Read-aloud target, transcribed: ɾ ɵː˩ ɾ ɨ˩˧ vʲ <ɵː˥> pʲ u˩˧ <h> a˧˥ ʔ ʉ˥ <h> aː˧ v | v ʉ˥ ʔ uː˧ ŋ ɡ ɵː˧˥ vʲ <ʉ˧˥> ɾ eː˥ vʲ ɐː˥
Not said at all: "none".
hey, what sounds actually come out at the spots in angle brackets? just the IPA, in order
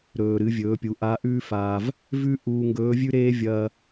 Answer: ɵː˩˧, ʔ, f, ʉ˥

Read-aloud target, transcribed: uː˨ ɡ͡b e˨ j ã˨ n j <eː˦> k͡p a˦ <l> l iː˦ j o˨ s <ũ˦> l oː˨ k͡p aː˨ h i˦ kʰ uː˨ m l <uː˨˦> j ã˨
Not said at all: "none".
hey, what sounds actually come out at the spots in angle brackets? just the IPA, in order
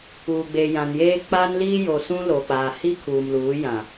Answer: eː˦, n, ũ˦, uː˨˦

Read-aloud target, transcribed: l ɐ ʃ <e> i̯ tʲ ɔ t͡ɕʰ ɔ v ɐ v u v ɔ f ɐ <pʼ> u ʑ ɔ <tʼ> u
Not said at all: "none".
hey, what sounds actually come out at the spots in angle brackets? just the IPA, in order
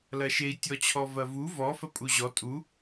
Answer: e, pʼ, tʼ

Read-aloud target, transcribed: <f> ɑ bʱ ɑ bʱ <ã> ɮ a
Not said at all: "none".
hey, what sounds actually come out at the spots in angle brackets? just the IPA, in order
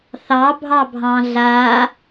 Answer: θ, ɑ̃

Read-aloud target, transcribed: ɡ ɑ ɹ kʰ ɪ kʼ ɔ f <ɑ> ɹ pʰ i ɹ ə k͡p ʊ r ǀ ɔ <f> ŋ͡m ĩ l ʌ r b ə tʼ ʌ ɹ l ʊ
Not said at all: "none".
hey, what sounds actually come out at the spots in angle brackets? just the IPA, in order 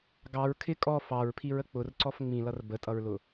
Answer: ɑ, f

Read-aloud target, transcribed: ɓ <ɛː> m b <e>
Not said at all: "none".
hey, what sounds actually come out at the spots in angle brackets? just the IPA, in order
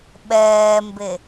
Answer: ɛː, e

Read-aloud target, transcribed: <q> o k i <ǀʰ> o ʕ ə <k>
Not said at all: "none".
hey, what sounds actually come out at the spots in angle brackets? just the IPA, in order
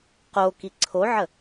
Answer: q, ǀʰ, none

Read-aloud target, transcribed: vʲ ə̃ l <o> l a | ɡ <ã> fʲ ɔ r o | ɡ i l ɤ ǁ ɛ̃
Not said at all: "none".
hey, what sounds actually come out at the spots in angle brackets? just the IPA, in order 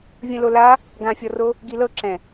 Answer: o, ã

